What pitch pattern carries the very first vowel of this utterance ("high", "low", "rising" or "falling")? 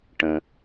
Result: low